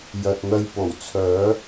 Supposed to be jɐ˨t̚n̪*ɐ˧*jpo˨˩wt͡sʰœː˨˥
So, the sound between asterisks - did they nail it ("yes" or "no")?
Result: yes